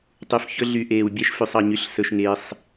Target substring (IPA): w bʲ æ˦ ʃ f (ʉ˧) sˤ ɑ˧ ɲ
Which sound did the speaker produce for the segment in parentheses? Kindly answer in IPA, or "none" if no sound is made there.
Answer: ʉ˧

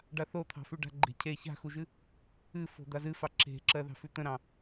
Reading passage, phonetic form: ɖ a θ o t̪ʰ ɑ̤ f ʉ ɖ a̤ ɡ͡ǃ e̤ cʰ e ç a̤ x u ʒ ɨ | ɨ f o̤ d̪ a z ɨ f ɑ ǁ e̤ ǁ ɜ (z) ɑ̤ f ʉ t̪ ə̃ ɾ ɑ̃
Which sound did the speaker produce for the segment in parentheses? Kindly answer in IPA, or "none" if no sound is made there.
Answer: ð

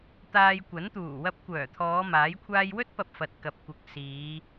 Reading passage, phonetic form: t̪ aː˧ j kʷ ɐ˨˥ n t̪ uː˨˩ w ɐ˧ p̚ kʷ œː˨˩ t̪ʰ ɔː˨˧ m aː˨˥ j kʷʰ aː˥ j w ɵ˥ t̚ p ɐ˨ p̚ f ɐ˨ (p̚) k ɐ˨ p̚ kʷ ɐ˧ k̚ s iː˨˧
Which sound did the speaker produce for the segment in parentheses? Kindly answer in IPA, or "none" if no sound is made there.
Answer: t̚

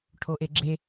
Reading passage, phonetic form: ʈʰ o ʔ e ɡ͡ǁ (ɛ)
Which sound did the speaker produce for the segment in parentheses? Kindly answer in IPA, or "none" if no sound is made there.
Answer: e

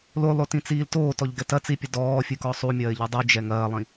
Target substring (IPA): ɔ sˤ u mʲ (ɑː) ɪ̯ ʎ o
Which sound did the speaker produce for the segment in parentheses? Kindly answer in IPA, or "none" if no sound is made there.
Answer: ɐː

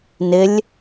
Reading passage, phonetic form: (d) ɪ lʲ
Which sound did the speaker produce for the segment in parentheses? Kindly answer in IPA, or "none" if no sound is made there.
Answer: n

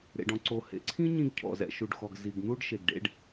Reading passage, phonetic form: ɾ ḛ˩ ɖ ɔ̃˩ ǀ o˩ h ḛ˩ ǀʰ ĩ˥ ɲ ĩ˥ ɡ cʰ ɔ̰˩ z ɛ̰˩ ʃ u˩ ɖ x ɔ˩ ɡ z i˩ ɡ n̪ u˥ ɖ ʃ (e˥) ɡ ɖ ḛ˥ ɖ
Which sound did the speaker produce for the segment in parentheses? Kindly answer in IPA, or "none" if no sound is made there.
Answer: e˩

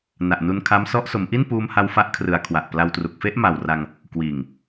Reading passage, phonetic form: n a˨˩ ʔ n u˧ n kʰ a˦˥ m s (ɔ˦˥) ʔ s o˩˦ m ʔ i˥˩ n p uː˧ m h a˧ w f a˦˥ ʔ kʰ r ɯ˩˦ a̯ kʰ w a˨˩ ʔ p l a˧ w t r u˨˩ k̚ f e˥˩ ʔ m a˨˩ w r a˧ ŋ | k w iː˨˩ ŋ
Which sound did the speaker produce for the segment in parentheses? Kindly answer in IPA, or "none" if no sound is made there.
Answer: ɔ˦˥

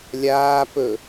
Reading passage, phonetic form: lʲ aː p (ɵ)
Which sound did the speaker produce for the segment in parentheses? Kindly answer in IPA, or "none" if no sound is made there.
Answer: ɵ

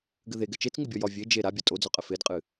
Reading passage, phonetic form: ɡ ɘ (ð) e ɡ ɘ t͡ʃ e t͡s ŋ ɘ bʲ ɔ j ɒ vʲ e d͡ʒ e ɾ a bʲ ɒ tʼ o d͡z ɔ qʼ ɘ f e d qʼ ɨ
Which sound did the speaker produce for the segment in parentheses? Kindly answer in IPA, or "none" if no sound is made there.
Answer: ð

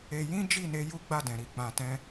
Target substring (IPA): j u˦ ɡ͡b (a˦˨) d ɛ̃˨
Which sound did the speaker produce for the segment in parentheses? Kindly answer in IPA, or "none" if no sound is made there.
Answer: a˦˨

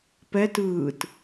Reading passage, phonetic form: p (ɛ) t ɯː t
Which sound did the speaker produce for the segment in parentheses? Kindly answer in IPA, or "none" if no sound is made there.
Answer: ɛ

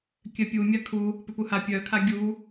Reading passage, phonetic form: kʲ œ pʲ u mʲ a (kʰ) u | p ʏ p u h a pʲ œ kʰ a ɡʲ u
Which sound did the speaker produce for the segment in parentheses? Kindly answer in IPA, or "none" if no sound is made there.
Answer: kʰ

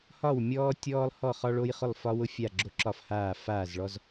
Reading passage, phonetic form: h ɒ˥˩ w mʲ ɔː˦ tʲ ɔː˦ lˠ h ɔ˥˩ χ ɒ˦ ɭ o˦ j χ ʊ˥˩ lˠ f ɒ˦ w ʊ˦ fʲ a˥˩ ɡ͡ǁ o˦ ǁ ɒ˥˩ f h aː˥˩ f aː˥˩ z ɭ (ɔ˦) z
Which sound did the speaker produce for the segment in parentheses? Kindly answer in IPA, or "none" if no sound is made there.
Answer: ɔ˦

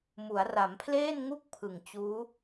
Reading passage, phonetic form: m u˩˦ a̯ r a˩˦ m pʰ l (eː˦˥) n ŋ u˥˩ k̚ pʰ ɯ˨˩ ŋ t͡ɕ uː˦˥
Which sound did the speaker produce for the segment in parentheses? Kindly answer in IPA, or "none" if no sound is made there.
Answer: eː˥˩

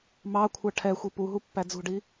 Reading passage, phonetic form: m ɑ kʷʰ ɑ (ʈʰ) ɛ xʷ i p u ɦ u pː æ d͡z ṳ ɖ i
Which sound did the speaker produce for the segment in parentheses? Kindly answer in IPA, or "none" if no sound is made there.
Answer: ʈʰ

